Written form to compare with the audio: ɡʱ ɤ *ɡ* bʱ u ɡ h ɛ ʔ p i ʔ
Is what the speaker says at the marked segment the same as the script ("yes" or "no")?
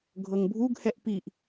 no